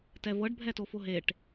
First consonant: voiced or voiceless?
voiceless